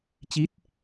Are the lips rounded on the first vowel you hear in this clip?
no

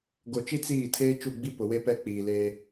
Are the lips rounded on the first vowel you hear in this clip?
yes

